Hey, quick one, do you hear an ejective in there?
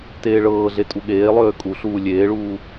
yes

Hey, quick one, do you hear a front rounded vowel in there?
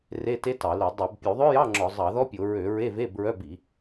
yes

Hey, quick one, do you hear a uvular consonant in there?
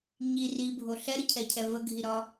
no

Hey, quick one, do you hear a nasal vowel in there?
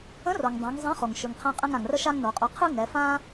yes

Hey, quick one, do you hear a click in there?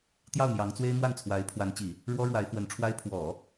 no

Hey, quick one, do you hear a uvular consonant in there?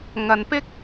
no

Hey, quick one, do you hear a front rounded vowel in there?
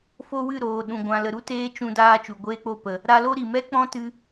no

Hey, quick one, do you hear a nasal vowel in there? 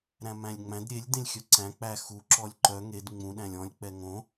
yes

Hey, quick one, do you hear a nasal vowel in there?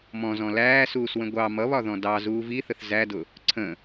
yes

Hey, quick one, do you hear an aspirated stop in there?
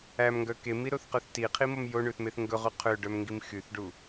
yes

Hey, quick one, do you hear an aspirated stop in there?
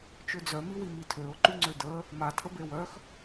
yes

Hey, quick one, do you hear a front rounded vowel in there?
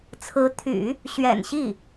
yes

